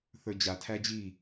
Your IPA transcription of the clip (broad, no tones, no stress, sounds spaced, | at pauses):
θ ə˞ d͡ʑ a tʰ æ d͡ʑ i